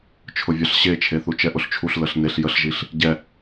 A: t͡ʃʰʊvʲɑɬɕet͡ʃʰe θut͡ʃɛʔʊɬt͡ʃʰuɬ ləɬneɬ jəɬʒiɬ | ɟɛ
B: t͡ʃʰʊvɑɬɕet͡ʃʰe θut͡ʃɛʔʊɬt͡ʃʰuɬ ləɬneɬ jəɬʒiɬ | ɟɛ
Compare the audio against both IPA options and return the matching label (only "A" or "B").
A